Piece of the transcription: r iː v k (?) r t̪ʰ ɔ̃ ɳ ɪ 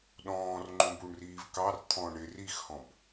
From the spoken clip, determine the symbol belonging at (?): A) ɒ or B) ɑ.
B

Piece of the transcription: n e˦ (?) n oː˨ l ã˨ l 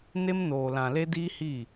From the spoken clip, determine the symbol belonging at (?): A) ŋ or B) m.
B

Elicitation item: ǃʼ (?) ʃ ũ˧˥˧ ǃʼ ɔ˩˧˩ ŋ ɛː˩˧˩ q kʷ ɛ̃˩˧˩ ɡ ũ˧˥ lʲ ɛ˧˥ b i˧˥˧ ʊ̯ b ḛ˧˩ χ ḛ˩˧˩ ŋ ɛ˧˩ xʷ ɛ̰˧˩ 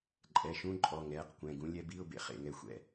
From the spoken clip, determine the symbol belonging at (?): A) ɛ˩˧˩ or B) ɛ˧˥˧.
A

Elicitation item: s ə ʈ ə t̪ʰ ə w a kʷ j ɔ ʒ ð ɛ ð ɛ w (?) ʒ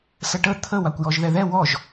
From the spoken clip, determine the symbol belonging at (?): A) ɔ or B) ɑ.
A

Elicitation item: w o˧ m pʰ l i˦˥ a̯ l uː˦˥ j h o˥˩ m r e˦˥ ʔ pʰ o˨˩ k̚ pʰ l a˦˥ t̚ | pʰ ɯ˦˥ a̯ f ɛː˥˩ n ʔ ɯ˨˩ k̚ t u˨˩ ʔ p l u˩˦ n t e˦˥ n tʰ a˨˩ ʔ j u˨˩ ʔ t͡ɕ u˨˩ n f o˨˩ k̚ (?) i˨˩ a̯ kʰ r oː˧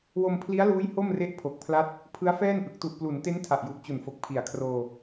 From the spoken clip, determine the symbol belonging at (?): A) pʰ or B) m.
A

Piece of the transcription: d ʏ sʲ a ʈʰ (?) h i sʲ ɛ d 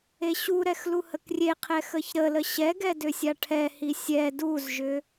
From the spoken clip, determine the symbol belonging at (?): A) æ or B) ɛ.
B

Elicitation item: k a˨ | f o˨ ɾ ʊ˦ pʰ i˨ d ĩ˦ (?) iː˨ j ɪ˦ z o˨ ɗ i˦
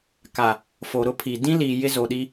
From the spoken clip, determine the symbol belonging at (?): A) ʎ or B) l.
B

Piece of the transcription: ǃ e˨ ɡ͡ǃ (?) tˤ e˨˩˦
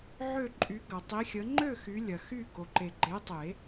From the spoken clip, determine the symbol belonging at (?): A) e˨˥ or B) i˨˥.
A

